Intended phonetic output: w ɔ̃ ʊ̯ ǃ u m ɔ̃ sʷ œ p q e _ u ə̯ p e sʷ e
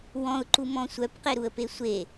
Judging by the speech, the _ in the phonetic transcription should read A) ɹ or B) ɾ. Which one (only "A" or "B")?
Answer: B